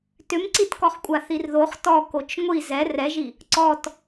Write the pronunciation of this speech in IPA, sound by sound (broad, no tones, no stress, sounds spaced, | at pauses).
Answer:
t ʏ m ǀ i t k ɔ χ kʷʼ a θ i r ð o χ t ɔ k o t͡ʃ ŋʷ i z ɛ r ɛ ʒ i | ǀ ɔ t